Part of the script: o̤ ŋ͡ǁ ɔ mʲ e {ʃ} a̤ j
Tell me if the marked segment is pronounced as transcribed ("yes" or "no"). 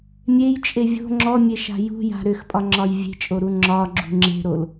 yes